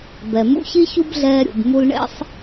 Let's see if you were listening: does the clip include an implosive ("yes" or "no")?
no